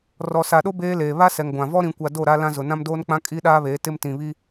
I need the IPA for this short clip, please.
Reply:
r ɔ˨ s a˨ ɗ o˦ b eː˦ l eː˨ β a˦ s ɛ˨ ŋ ɡʷ ã˨ v ɔ˦ ɾ ĩ˨ kʷ a˨ d o˦˨ ɾ a˦ l ã˦ z ʊ˨ n ã˦ m d oː˦ n k͡p ã˦ kʼ i˦ ɗ aː˦ β eː˨˦ t ɪ˦ m t ĩ˨ β i˦

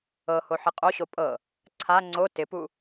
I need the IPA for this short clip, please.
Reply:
ɤ h o ħ ɪ qʼ o ɕ o pʼ ɤ | ǀʰ a ŋ͡ǀ o t ɪ p u

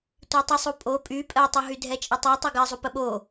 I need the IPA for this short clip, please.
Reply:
tʷ i tˤ ə sˤ u pʼ o pʼ y pʼ ɜ tˤ u ɦ y dʱ ɛ t͡ʃʼ ə tˤ o tˤ o ɡ ɜ zˤ u p ə ɓ o

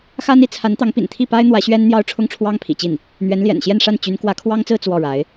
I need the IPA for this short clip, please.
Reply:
x a˥ n i˧˥ t͡sʰ a˧˥ n t̪ ɑ˧˥ ŋ p ḭ˨˩ n t̪ʰ i˥˩ p a˥ ɪ̯ n̪ w ä˧˥ ɕ ɥ ɛ˥ n n̪ j ɑ˥ ʊ̯ ʈ͡ʂʰ ʊ˥ ŋ ʈ͡ʂʰ w ɑ˥ ŋ pʰ ḭ˨˩ t͡ɕ i˥˩ n | n̪ ɥ ɛ˧˥ n l j ɛ̰˨˩ n ɕ j ɛ˥˧ n ʂ a˥˩ n t͡ɕ y˧˥ n k w ä˧˥ kʰ w ɑ˥ ŋ t͡s ɹ̩˥˧ t͡s w ɔ˥˩ ɻ a˧˥ ɪ̯

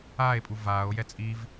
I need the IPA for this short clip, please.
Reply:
aː e̯ pʼ u v aː o̯ j ɛ t͡sʼ i v

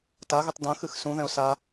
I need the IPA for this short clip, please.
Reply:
t a ɣ ɨ tˤ d ɐ̃ x ɨ x s ũ ð ɛ̃ ʊ̯ s a

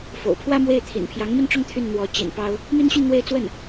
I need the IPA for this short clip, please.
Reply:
f o̰˨˩ ʊ̯ pʰ w ä˥ m w e˥˩ ɪ̯ t̪ʰ ḭ˨˩ n pʰ j ɑ˧˥ ŋ m i˥˧ n ʈ͡ʂ ʊ˥˧ ŋ t̪ʰ y˥˩ n n̪ w ɔ˧˥ t͡ɕ ḭ˨˩ n p ɑ˥ ʊ̯ | m i˥ n ɕ y˥˧ n n̪ w e˥˧ ɪ̯ t͡s w ə˥˩ n

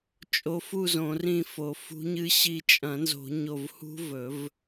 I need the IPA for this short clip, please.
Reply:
t͡ʃʼ o˧˥ f u˥˨ z õ˨˩˦ r ĩ˧˩ f o˨˩˦ f ṳ˧˥ ɲ ɨ˧˥ ɕ i˧˩ t͡ʃʼ ɐ̃˨˩˦ n z o̤˨˩˦ ɲ o˧˩ v h ṳ˧˥ v ɵ˨˩˦ v

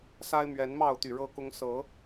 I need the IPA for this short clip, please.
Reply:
s a˦ ɪ̯ m ɥ ɛ˨˦ n m ɑ˥˨ ʊ̯ t̪ y˨˩ ɻ ɤ˦ k ʊ˦ ŋ s ɤ˨˦

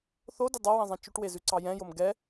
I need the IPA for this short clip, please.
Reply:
θ o d ʊ dˤ a w ɛ̃ zˤ ɛ̃ t͡ʃ ʉ ʈ w e z ʉ ǀ ɑ j ɛ̃ j o m ɡ ɛ

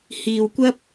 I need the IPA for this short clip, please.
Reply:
h iː˨ w kʷ ɐ˧ p̚

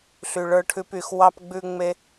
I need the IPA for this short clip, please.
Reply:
ɬ y˧ ɭ ə˞˦ ʈʰ ʉ˦ p y˧ x w ɑ˦ p ɡ͡b ʉ˦ ŋ͡m e˦

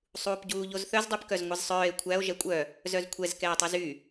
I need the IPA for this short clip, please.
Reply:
sˤ uː p ɟ uː ʎ o z θ œ z dˤ y p k œ z ŋʷ ɛ z sˤ œː e̯ kʷʰ æ o̯ ʒ ɛ kʷʼ œ | z œ z kʷʰ ɛ z k ɛː tˤ ʉ z y

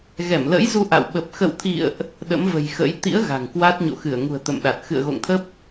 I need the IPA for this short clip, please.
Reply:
ɣ ɛ˧˩ m l ə̰˧˥ j z u˧ ʔ a̰˧˨ w ɓ ə˨˩ p̚ x ə̰˧˨ w t̪ʰ ḭ˧˨ ə̯ ʔ | ɗ ə̰˧˥ m v ə̤˨˩ j x ə̰˧˥ j t̪ ḭ˧˥ ə̯ ɣ a̤˨˩ ŋ k w a˦˥ t̚ ɲ o̰˧˨ x ɨ˧˩ ə̯ ŋ ṳ˨˩ ə̯ t̪ ə̰˧˨ m ɗ a˨˩ t̚ x ɨ̰˧˨ ə̯ ɣ o̰˧˨ ŋ t̪ʰ ə˦˥ p̚

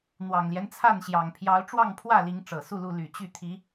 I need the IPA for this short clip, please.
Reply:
n̪ w ɑ˨˩ ŋ l j ɛ˦ n t͡sʰ a˥˨ n ɕ j ɑ˨˩ ŋ pʰ j ɑ˨˦ ʊ̯ ʈ͡ʂ w ɑ˥˨ ŋ pʰ w ä˥˨ l i˨˦ ŋ ʈ͡ʂ ɤ˨˩ s u˥˨ l u˥˨ l y˨˩ t͡ɕ y˥˨ t̪ʰ i˨˦

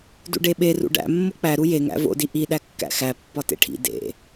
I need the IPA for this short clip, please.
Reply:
d ṵ ɖ e ɓ e r ṵ ɖ æ̰ mː o k͡p æ ɾ u j e ŋ æ̰ v o̰ d i ʔ i ɗ æ kː æ̰ x æ pː ɒ t ḛ ʈʰ ḭ d ḛ

